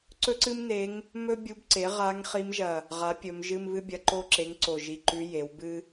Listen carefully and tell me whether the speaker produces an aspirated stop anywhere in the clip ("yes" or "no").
no